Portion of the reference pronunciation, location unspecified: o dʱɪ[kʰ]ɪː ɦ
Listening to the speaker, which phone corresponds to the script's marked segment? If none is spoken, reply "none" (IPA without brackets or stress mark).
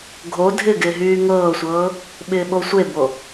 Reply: ɡ